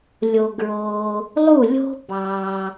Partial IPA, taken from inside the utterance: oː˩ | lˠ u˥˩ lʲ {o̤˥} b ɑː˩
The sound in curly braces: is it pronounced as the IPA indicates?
yes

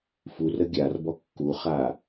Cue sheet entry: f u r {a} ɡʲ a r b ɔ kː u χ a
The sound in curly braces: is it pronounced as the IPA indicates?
no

